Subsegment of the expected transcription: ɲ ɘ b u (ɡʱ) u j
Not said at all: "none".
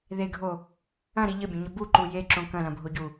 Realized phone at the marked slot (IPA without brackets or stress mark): ǃ